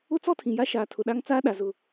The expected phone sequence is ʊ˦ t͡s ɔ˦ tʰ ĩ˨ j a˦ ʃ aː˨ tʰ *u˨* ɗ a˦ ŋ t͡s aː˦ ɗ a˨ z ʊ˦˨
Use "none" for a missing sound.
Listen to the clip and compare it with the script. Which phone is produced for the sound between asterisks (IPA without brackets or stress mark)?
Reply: ʊ˨